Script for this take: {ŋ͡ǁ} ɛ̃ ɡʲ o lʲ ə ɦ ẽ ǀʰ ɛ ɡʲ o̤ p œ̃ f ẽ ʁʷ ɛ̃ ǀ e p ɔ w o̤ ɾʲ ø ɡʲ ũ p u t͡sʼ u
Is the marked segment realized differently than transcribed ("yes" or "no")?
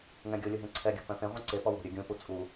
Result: yes